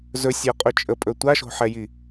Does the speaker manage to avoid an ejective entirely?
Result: no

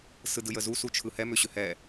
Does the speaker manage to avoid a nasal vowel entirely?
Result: yes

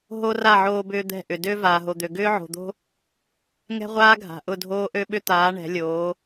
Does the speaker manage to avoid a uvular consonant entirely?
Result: no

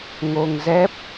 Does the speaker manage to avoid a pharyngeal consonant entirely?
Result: yes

